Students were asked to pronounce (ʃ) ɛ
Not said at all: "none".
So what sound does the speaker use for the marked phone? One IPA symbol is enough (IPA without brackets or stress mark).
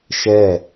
ʃ